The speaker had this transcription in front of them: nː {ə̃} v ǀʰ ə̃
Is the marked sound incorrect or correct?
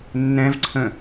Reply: incorrect